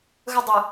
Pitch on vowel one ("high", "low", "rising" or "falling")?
high